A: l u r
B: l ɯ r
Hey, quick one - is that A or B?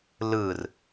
B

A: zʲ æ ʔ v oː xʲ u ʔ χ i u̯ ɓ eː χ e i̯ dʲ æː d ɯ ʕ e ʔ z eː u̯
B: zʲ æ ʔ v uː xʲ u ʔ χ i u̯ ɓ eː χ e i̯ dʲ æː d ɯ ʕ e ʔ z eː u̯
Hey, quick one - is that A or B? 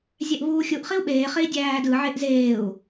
B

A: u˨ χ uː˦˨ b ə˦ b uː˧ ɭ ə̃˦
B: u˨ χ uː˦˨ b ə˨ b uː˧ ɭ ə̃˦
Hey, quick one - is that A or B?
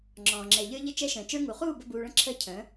A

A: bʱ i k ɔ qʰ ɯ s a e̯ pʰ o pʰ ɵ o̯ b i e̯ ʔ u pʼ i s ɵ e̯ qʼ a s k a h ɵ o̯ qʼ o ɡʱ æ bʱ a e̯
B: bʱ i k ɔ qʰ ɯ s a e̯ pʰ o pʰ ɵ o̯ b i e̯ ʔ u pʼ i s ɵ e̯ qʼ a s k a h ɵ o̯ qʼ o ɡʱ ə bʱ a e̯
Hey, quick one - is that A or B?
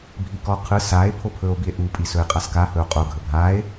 B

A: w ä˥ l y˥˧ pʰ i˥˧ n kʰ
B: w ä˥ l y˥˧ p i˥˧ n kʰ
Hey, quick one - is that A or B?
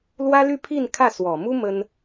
A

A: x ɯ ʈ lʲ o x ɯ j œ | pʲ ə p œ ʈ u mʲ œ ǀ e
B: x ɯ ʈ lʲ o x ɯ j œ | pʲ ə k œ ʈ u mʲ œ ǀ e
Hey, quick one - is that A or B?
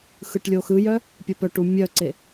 A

